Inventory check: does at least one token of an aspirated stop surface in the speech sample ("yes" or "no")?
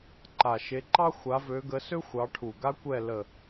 yes